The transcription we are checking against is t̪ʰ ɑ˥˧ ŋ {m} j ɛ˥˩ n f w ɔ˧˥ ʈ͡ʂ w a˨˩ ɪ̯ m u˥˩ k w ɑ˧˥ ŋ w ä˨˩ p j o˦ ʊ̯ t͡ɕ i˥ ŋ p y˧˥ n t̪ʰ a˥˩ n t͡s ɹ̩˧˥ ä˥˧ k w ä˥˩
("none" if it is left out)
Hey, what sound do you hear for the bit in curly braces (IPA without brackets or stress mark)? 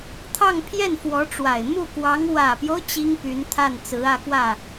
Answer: pʰ